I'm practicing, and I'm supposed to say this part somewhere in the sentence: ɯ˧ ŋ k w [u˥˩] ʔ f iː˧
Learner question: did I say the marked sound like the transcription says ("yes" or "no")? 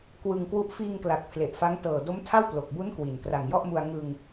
no